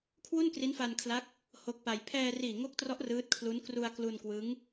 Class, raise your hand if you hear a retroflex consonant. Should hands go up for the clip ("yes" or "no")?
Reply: no